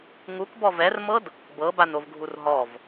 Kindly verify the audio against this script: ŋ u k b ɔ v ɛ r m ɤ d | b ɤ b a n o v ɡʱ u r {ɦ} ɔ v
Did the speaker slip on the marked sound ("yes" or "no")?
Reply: no